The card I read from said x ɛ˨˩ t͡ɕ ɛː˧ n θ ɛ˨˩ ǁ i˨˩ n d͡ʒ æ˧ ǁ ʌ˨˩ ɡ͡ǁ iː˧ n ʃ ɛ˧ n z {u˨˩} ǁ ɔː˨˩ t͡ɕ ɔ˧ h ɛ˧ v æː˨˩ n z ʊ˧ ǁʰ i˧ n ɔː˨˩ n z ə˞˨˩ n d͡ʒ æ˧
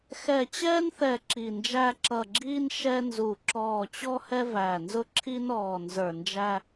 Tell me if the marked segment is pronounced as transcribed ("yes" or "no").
yes